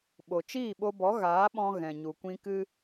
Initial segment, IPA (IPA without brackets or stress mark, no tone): ɓ